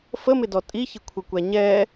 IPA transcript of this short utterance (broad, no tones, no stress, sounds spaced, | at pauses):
f ə m ɪ d ɔ tʼ i ç ɪ kʷʰ ɪ kʷ æ ɲ ɛː